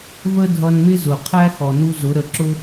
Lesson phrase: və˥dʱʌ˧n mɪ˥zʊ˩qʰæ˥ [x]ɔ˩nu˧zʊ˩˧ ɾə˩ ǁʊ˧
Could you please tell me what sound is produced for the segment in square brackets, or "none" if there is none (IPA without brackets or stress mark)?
x